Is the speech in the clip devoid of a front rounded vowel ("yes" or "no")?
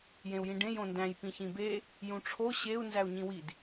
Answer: yes